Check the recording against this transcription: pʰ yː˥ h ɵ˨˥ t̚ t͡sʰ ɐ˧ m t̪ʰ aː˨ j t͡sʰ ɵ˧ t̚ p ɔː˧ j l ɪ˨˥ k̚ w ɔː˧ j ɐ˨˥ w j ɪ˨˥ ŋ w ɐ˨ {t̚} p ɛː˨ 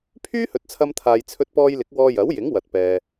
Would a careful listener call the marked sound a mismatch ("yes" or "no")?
no